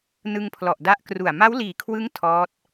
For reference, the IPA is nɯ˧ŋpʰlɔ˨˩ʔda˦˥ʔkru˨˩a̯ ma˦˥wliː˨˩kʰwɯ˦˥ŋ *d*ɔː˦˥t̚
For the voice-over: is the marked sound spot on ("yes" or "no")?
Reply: no